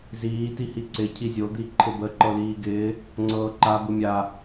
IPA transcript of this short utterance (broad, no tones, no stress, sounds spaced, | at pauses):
z iː t i h i ǀ ɪ cʰ i zʲ o d̪ i ǃʰ ɪ b ə ǃ ɤ l iː ɡ ɪː | ŋ͡ǀ ɤː ǃ a b ɯ mʲ a